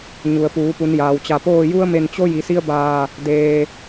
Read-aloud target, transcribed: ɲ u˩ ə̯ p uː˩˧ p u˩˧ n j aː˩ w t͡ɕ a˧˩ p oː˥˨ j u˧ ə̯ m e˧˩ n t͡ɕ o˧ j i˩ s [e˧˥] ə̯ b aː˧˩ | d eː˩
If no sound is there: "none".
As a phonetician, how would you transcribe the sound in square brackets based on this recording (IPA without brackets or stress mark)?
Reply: i˧˥